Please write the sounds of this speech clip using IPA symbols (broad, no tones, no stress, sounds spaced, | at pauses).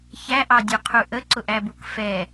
ç æ ʔ ɑ dʲ u qʰ u ʔ ə ǀ ʊ ʔ æ b u k f ɛ